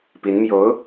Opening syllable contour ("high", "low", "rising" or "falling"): rising